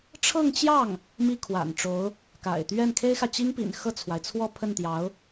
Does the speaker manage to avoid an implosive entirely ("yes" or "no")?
yes